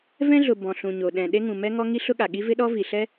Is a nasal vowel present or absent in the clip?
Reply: present